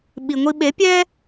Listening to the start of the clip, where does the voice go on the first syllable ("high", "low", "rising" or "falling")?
low